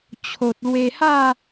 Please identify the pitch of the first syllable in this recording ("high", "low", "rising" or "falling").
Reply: low